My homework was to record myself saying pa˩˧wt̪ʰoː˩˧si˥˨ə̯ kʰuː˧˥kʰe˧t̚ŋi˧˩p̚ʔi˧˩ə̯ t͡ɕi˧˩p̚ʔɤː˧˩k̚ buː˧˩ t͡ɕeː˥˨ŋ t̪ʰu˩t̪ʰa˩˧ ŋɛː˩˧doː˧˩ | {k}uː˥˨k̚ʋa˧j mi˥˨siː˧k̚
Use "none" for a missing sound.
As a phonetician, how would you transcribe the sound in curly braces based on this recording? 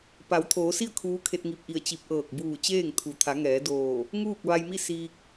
ŋ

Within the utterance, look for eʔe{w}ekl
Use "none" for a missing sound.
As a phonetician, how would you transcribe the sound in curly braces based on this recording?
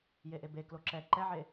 b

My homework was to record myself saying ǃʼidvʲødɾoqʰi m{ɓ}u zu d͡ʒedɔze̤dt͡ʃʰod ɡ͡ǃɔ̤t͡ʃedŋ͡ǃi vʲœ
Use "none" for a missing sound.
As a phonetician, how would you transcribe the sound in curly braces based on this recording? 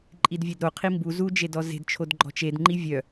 b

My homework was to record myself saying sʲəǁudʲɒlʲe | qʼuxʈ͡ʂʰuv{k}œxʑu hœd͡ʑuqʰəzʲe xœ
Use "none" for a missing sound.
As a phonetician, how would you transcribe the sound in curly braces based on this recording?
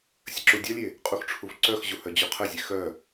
ǀ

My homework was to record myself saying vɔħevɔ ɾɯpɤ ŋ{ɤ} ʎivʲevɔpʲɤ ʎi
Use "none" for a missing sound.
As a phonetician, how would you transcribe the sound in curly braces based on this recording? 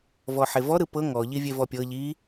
ɔ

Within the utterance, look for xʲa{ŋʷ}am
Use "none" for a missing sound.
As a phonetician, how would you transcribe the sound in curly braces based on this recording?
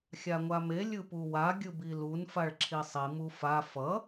ŋʷ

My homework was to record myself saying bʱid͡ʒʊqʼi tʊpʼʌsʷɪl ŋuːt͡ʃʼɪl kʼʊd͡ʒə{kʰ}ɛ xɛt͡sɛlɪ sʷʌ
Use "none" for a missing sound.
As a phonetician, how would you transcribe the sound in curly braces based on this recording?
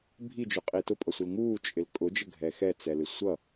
ɡʱ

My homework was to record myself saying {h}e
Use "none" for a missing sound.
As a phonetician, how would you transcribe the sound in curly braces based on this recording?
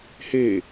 h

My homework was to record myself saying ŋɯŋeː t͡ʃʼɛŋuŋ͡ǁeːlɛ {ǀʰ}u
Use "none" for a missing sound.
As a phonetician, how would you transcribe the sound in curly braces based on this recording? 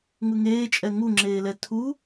tʰ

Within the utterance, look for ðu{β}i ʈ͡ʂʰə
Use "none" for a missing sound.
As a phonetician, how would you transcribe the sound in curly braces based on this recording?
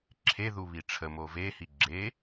β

